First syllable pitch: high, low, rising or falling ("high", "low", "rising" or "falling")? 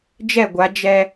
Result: falling